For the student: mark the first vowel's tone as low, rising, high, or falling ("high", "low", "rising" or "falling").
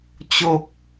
low